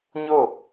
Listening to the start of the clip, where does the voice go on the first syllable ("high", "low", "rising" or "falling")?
falling